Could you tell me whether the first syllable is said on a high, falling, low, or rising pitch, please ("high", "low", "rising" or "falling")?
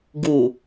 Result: low